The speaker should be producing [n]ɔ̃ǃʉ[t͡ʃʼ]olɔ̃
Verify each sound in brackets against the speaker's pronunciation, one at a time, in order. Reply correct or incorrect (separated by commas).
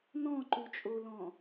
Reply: correct, correct